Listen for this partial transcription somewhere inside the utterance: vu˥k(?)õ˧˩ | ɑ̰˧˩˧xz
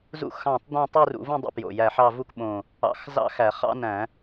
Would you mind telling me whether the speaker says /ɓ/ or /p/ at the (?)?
ɓ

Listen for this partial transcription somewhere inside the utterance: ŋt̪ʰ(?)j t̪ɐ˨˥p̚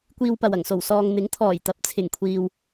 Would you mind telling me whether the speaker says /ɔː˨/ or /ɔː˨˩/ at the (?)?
ɔː˨˩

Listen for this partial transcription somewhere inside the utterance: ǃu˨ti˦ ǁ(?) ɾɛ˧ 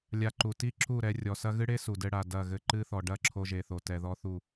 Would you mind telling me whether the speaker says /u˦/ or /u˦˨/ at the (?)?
u˦˨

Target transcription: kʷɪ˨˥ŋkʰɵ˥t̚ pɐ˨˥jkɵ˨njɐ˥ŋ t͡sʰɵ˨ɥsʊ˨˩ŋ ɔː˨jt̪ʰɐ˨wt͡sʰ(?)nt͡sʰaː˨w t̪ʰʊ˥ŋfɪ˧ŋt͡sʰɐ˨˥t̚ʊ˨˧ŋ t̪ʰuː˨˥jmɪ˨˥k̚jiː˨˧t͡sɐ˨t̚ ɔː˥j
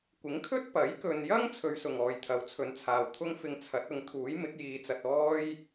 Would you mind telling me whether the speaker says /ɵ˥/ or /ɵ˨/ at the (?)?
ɵ˨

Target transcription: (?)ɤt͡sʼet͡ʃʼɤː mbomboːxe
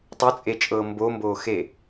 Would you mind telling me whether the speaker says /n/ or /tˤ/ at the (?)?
tˤ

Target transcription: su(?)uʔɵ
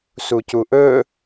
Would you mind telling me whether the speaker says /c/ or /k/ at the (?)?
c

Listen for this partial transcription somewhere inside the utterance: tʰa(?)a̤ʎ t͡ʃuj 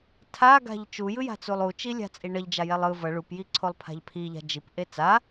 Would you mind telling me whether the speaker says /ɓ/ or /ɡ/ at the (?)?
ɡ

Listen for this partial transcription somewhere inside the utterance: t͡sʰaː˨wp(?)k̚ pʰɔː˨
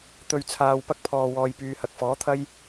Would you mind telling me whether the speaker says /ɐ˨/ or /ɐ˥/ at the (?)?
ɐ˥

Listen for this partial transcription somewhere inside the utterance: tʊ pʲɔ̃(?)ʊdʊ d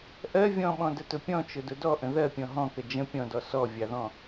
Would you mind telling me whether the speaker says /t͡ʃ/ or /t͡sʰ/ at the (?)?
t͡ʃ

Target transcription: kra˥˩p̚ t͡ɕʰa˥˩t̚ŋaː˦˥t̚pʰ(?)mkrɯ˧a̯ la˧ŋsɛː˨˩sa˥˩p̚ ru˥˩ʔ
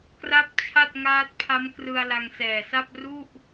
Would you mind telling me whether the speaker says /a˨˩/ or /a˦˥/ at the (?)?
a˦˥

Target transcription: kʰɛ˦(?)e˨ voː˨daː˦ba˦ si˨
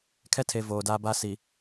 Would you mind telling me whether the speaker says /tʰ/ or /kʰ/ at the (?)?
tʰ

